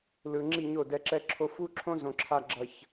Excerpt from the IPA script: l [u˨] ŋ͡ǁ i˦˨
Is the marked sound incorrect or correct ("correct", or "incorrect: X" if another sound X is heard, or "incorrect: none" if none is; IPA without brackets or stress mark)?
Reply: incorrect: ɯ˨